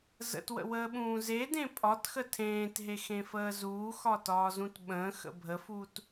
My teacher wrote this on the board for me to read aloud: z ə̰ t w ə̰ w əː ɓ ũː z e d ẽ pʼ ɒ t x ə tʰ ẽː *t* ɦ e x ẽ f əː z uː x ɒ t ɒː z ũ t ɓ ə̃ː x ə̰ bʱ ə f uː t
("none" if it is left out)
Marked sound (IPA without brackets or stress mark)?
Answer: t